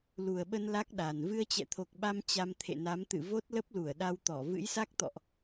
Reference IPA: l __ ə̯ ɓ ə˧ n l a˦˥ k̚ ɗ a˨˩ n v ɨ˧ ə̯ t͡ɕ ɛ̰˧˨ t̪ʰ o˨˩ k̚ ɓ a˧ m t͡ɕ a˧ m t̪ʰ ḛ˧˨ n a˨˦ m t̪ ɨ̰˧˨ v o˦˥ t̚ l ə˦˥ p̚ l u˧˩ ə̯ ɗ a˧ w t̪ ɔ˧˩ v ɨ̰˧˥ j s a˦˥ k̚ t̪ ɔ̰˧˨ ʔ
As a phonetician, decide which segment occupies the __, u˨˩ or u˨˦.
u˨˩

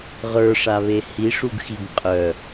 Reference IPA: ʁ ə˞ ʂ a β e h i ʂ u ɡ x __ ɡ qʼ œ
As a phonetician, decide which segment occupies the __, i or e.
i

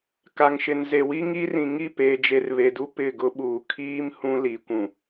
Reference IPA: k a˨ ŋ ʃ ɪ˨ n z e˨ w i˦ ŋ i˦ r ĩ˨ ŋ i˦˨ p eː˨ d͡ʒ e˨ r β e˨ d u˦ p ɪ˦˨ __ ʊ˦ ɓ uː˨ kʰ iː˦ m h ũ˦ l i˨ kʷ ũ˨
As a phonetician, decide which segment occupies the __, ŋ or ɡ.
ɡ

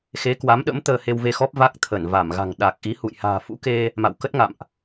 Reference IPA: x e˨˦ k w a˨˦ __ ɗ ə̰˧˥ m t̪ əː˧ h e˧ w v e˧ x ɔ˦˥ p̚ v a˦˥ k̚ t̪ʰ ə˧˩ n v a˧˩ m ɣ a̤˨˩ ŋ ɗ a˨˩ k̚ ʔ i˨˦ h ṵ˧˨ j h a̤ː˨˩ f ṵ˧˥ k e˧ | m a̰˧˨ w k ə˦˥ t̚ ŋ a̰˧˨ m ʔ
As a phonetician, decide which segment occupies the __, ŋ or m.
m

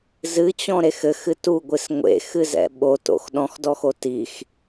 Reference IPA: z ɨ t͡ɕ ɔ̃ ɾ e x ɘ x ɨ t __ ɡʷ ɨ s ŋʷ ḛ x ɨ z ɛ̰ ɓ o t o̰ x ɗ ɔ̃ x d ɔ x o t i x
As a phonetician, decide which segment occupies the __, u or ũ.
u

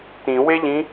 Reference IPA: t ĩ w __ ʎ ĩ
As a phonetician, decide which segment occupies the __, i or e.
e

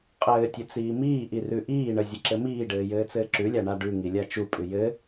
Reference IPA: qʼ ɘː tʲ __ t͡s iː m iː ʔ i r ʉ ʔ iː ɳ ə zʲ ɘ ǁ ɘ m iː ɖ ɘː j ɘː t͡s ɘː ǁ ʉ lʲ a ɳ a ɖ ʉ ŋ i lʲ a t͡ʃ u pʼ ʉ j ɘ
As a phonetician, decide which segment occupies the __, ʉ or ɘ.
ɘ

